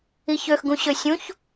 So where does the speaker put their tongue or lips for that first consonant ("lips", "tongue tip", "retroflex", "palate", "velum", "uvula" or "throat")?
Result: palate